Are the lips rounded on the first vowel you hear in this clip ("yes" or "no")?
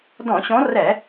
yes